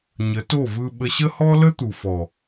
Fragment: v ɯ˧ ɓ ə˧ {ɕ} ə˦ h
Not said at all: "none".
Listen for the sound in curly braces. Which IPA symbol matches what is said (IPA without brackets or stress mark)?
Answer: ɕ